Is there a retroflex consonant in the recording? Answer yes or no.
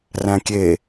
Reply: no